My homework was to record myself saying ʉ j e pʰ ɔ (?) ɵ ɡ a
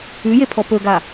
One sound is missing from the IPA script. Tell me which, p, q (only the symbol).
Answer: p